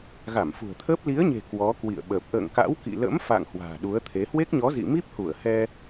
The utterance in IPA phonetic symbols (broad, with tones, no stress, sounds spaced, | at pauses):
ɣ a˧˩ m f ṳ˨˩ ə̯ t̪ʰ əː˦˥ p̚ l i˨˦ ə̯ ɲ e̤˨˩ k w ɔ˨˦ k w ḭ˧˨ ə̯ ɓ əː˨˩ p̚ ʔ ə̰ː˧˨ ŋ k a̰˧˥ w k ḭ˧˨ l ə̰˧˥ m f a̰˧˨ ŋ h w a̤ː˨˩ ɗ u˨˦ ə̯ t̪ʰ e˨˦ h w e˦˥ k̚ ɲ ɔ˨˦ z ḭ˧˨ m i˦˥ p̚ h u˧˩ ə̯ h ɛ˧